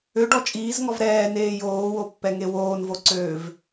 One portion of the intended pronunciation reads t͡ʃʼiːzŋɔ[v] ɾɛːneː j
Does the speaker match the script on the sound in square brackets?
yes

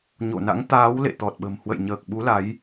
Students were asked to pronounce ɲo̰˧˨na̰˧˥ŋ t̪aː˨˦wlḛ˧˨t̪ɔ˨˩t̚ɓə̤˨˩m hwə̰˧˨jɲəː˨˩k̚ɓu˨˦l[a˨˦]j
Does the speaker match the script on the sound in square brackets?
yes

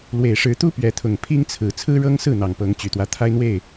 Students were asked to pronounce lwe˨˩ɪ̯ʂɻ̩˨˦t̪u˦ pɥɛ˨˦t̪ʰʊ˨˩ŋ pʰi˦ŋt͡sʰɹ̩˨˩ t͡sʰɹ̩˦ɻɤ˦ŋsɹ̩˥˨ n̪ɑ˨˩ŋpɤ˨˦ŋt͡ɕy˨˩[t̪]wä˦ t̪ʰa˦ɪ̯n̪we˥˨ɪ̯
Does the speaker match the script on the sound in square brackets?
yes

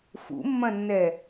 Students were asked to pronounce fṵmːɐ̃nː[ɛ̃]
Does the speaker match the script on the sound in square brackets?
no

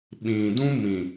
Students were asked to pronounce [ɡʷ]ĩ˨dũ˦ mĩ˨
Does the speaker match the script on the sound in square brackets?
no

